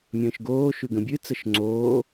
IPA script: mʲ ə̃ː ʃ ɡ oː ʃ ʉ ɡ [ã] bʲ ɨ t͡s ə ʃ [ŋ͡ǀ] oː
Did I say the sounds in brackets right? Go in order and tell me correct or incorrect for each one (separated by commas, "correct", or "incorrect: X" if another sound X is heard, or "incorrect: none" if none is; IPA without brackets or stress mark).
incorrect: ə̃, correct